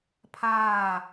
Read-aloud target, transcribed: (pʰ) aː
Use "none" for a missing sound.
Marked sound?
pʰ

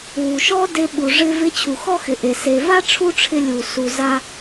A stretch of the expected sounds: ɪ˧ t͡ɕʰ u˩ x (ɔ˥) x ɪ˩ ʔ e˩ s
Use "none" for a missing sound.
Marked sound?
ɔ˥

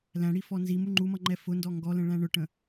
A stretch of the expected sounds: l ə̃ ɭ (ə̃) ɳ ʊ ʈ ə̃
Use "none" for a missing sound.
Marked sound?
æ̃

